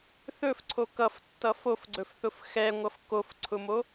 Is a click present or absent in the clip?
present